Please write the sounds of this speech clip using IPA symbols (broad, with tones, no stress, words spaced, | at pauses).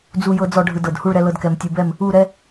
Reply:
d͡zu˥˧jɤ˥d͡zɔ˥˧ ɖʱɯ˧dɤ˧˩dhu˥˧ɭ ɾɛ˥lɤ˥dkɛ˧m tʲɯ˧bɛ˥˧m | u˥˧ɾɛ˥